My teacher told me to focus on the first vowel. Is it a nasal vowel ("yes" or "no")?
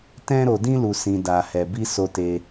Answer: yes